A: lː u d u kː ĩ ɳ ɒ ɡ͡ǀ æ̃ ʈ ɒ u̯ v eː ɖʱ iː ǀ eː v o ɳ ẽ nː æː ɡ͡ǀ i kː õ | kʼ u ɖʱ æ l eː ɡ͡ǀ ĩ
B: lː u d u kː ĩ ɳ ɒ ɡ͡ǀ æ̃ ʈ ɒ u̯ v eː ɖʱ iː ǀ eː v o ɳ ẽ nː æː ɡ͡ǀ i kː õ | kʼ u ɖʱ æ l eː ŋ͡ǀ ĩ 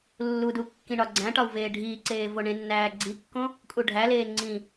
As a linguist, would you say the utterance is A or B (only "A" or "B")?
B